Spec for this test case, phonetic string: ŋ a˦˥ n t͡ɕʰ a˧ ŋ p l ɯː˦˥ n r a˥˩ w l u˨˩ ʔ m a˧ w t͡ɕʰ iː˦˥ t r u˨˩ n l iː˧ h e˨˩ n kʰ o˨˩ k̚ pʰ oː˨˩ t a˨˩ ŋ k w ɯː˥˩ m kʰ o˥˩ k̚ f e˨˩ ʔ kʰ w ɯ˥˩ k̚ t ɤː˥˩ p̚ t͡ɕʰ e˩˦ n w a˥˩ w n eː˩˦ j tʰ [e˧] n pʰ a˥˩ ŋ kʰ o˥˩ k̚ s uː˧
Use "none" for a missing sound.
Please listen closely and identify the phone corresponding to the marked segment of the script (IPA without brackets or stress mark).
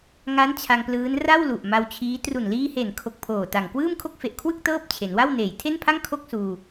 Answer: e˥˩